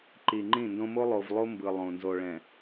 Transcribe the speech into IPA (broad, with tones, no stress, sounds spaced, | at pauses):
ǃ i˨ ŋ͡ǃ ĩ˦˨ n d õ˦ m o˦ lˠ o˨ v lˠ o˦ m b ɯ˨ lˠ õ˨ n z o˨ ɭ ɛ̃˨